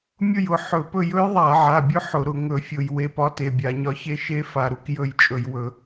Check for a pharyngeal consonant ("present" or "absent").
present